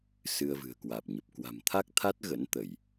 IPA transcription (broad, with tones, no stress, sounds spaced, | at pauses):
s ɨ˧ ə̯ v ɨ̤˨˩ ə̯ k w aː˨˩ p̚ ɲ ə˨˩ p̚ k w a̤˨˩ m t̪ʰ a˦˥ k̚ t̪ʰ a˦˥ t̚ ɣ ə̰˧˥ n t̪ ə˧˩˨ j